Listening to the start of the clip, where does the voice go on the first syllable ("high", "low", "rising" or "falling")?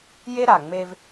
high